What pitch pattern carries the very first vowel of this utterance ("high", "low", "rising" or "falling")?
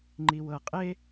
low